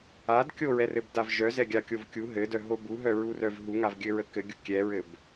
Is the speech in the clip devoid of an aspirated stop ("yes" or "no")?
yes